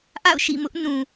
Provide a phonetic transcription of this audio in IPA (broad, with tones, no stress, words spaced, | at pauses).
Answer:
ʔa̰˦˨ʊ̯ʃḭ˦˨mʊ˦ʔ nũ˨